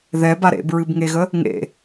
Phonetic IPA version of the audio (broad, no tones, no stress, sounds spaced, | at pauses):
ð ɛ b a ɾ ḛ b ɹ ɨ b ŋ e ɣ ə | ŋ ḛ